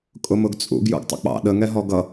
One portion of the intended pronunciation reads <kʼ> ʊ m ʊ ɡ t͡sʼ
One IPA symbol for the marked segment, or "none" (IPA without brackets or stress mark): kʼ